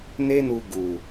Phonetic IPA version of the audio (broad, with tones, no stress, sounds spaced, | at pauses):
n e˦ n u˧ ɡ u˨